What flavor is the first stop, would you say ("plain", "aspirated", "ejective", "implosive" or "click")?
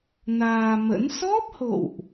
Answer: plain